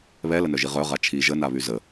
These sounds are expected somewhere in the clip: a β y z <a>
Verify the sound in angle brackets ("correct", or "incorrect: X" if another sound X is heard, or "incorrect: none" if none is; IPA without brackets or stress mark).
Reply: incorrect: ə